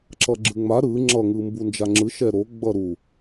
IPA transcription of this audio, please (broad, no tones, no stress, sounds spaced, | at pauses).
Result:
ǁ ʌ ɡ͡ǁ ɯ ŋ͡m a ɾ ɯ ŋ͡ǁ ʌ ŋ ɯ m b u n d͡ʒ a ŋ͡ǁ ɯ ʃ ɛ ɾ o ɡ͡b ʌ ɾ u